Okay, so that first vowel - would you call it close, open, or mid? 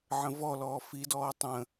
mid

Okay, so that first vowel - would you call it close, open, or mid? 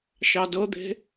open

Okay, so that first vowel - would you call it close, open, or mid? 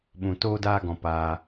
close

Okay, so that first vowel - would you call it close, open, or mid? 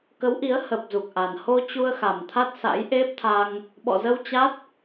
mid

